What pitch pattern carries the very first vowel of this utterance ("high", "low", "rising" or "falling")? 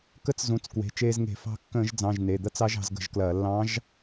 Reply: rising